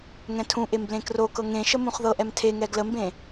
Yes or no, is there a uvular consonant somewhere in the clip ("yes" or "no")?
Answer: yes